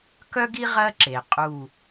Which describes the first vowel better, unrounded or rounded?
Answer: rounded